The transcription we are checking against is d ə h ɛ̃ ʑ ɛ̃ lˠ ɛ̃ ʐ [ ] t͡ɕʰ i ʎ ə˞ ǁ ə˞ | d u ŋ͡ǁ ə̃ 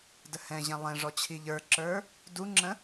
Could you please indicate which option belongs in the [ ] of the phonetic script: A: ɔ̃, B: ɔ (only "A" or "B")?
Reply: B